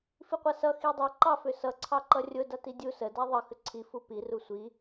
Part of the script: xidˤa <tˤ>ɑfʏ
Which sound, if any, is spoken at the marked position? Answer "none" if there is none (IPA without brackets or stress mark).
ǃ